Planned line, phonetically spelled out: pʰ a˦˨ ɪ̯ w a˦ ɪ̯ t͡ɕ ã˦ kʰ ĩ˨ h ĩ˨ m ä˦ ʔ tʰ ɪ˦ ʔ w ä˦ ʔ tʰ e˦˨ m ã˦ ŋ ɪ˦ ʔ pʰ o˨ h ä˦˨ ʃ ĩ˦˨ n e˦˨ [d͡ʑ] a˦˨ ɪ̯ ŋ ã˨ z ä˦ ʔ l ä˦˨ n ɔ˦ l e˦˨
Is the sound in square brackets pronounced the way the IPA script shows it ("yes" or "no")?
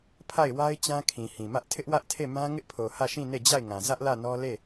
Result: yes